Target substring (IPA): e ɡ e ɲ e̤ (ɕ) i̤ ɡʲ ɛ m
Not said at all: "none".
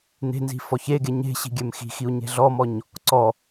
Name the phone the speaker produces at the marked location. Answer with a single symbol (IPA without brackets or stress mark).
ɕ